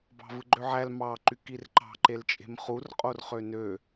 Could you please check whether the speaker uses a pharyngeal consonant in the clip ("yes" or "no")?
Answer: yes